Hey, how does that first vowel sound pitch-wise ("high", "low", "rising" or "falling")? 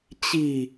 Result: low